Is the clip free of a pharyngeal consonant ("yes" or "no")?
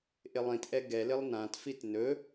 yes